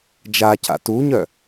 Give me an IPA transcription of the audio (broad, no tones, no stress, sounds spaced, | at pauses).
d͡ʒ a c a̰ t u ɲ œ